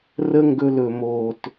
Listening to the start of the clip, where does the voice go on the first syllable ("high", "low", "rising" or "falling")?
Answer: high